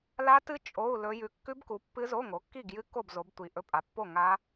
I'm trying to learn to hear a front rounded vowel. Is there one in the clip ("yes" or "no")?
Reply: no